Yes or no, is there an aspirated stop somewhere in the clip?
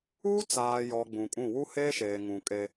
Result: no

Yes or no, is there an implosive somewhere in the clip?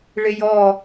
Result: no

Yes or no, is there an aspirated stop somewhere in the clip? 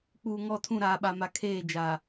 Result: yes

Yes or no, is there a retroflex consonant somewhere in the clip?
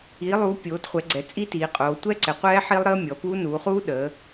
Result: no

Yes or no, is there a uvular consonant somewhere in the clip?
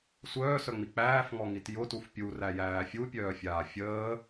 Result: no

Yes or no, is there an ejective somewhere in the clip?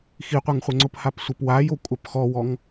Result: yes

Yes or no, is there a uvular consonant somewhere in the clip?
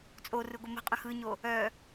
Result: yes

